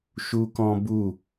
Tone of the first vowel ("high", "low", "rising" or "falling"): high